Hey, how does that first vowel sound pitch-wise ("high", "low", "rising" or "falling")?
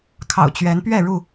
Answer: low